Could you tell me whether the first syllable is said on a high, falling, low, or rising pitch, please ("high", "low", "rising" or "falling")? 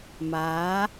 rising